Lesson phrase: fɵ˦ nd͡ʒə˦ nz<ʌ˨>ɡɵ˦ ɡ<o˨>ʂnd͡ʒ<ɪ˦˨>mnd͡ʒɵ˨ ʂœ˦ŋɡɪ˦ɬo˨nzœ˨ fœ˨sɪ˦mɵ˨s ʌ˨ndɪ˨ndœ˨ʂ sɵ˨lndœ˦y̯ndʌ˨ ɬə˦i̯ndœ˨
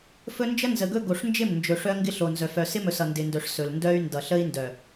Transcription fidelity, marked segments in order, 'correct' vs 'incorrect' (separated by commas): incorrect, correct, correct